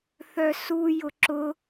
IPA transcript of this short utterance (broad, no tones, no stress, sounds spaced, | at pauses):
θ œ s u j ʊ ǁ ʊ